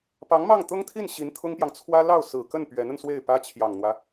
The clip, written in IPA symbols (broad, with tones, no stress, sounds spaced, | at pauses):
p ɑ˧˥ ŋ m ɑ˥˩ ŋ t̪ ʊ˥ ŋ t̪ʰ i˥˩ n ɕ i˧˥ n t̪ʰ ʊ˥ ŋ p j ɑ˨ ŋ t͡sʰ w ä˥ l ɑ˥˩ ʊ̯ s ɹ̩˨˩ k ə˥˩ n p ɥ ɛ˧˥ n ə˧ n s w e˥˩ ɪ̯ p ä˥ t͡ɕʰ j ɑ˨˩ ŋ n̪ w ä˦